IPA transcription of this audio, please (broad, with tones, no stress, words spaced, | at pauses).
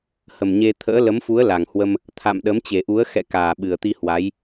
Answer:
hə˨˩mɲe˧ t̪ʰə̰ː˧˥ lə˨˦mfu˨˦ə̯ la˨˩ŋhwə˧m | t̪ʰa̰˧˨m ɗə˨˦mt͡ɕe˨˩ʔu˨˦ə̯ xɛ̰˧˨kaː˨˩ ɓɨ˨˩ə̯t̪i˧hwa˨˦j